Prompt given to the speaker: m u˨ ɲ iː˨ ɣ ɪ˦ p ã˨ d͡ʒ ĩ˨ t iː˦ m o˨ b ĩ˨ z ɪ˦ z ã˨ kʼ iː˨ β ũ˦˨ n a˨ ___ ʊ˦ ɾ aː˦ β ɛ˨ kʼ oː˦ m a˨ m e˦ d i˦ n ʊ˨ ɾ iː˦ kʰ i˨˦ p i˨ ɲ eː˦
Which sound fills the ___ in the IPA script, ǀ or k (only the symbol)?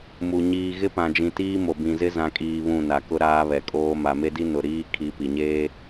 k